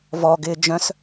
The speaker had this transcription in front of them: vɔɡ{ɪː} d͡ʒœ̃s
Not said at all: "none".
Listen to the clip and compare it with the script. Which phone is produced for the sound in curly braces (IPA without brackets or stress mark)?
ɪː